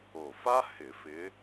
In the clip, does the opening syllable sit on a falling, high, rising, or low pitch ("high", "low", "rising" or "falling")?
low